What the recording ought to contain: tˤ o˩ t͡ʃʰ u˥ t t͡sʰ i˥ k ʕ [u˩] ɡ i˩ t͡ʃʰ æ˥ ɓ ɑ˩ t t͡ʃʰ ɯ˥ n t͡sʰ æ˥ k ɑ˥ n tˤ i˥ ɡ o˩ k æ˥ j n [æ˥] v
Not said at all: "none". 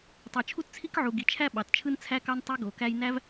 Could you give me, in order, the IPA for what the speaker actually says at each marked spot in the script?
u˩, æ˥

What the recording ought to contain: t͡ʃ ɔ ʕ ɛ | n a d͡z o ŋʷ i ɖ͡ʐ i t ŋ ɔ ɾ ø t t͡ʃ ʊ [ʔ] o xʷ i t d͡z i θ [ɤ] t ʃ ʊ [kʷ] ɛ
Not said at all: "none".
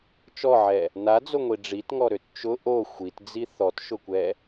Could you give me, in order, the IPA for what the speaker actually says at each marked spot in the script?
ʔ, ɔ, kʷ

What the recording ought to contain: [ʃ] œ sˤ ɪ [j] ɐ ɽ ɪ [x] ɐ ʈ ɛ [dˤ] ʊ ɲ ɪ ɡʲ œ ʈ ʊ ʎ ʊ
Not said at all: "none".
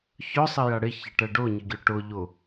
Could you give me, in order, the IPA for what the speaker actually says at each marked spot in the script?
ç, j, ç, ɖ

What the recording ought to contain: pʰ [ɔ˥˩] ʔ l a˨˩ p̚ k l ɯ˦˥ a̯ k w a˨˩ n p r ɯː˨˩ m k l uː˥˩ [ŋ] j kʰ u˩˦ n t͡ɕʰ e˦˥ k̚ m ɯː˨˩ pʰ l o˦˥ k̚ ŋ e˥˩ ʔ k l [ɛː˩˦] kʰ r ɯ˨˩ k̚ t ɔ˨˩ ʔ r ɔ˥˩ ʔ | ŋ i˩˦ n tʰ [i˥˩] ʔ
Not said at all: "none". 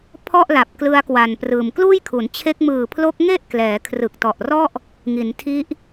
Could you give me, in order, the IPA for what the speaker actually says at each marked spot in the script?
ɔ˥˩, none, ɛː˩˦, i˦˥

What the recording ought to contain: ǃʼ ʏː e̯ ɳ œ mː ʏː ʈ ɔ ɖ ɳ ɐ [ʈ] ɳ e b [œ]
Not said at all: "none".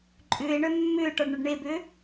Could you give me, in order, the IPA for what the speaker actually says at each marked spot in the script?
ɖ, ø

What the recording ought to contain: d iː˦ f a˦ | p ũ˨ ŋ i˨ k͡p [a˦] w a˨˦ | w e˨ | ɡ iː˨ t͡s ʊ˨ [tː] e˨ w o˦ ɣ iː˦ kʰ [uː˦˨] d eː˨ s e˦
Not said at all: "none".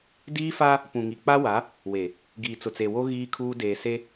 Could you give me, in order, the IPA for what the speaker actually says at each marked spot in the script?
a˦, t͡s, uː˦

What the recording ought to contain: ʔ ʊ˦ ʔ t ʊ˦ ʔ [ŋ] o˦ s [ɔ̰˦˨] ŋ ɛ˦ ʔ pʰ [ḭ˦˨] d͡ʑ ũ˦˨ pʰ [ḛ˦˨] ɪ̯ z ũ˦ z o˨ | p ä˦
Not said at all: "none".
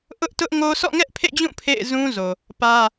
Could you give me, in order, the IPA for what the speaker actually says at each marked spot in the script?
ŋ, ɔ̰˦˨, ḛ˦˨, ḛ˦˨

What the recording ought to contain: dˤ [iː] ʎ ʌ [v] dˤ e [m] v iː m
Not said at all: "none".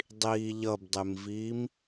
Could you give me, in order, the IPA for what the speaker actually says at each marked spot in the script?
iː, b, m

